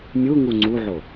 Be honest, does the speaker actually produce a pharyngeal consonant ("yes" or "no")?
yes